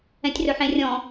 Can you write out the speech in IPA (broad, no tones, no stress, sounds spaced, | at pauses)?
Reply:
ɛ̃ tʲ r ɵ ħ ẽ rʲ ɔ̃